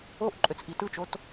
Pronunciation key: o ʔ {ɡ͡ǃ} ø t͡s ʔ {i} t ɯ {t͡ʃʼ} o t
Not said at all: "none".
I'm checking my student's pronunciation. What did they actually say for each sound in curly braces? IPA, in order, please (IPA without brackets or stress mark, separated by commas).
ǃʼ, i, t͡ʃ